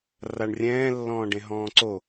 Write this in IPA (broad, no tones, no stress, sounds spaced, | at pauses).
r a ɳ rʲ ɛ̃ː lː ɔ̃ː ɖ ẽ ɦ ɔ̃ː ǀ o